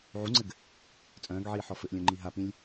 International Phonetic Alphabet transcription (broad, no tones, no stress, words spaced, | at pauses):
ʕuŋ͡ǀɘɡ | t͡sʼœ̃ːɡʕiː ħɔfɘʔlʲœ̃ ŋ͡ǃiɦapĩlʲ